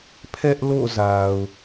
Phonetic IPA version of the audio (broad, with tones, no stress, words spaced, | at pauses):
pʰɛ˦ʔlo̰˦˨ za˨ʊ̯